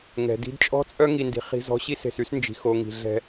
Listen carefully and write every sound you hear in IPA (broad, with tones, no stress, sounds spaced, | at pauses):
ŋ ɛ̤˨ d i̤˦ d t͡ʃʼ ɔ̤˦ t͡sʼ œ˦ ŋ i˨ n d i̤˨ χ i̤˦ z ɔ̤˦ ɕ i˦ s e̤˨ s y˦ s n d͡ʒ i̤˨ x o˨ ŋ i̤˨ ɮ ɛ̤˦